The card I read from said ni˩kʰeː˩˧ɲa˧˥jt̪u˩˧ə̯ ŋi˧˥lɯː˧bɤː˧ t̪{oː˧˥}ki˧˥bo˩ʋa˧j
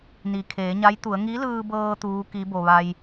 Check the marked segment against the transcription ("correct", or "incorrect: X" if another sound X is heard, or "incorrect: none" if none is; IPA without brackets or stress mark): incorrect: uː˧˥